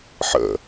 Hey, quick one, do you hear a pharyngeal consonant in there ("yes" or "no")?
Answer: yes